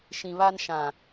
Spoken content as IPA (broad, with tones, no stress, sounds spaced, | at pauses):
ʃ ĩ˨ β a˦ n ʃ ã˨